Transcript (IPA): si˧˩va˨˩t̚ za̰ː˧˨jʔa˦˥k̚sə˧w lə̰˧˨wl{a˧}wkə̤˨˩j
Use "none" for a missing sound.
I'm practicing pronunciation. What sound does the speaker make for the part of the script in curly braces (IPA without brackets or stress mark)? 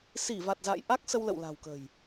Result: a̤˨˩